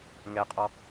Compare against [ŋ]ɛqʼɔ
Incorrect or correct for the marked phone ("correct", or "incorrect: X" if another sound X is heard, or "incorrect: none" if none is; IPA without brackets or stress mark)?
correct